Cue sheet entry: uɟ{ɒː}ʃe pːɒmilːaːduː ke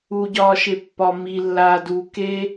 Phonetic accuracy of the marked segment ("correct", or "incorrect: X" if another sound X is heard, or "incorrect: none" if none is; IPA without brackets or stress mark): correct